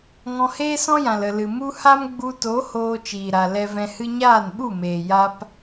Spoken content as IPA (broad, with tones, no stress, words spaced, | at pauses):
ŋɔ̃˧heː˦sɔ̃˦jã˨l ə˨lɨ˨ mu˦ ha˦m ɡ͡bu˧to˨˦ hoː˧t͡ʃiː˨ɾa˨ lɛ˧vɛ̃˧hɨ˦ ɲaː˦˨nɓu˦˨meː˨ ja˧p